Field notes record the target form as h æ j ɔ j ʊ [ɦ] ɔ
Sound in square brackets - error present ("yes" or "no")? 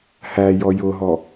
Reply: no